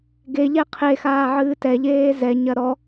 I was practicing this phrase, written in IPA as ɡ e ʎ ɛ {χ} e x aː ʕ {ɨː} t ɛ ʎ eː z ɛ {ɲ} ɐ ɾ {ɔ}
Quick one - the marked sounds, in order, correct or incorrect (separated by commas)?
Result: incorrect, correct, correct, correct